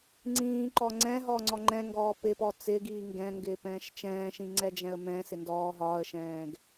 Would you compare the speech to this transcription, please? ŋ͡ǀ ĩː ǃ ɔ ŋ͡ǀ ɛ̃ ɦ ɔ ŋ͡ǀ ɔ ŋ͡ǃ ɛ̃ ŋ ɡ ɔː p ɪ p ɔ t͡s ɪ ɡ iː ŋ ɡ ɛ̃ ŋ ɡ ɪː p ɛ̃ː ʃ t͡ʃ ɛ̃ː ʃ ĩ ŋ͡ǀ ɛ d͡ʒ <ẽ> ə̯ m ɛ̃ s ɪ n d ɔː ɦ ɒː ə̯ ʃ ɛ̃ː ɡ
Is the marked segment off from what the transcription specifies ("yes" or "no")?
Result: yes